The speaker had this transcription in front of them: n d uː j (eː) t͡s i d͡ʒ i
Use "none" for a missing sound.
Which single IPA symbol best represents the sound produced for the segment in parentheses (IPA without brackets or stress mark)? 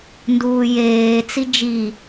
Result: eː